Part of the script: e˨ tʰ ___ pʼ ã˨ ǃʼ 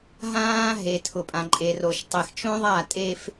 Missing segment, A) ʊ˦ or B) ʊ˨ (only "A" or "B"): B